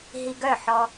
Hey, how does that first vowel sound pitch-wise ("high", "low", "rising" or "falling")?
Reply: low